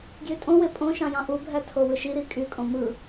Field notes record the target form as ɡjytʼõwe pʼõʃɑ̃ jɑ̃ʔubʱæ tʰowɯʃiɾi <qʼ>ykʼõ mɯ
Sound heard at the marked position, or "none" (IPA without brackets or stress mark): kʼ